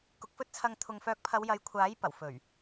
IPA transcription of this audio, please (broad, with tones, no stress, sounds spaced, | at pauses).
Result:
k ʊ˨ k̚ f ɵ˥ t̚ t͡sʰ ɐ˧ ŋ t̪ʰ ʊ˨ ŋ f œː˨˥ k̚ pʰ ɐ˨˧ w j ɐ˨˧ j kʷʰ aː˨˥ j p ɐ˨˩ w f ɵ˨˩ ɥ